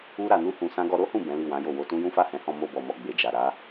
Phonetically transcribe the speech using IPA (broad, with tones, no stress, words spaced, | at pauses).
u˦ ɾa˧nu˦hũ˧sã˦ ɡɔ˧ɾo˦hũ˦˨ bɛ̃˨˦li˦˨wã˨˦jo˦˨ wo˧tũ˦ jũ˦fa˦˨hɛ̃˨˦hɔ̃˧ mo˧bɔ˨mɔ˨ ɡ͡be˨d͡ʒa˨ ɾa˨˦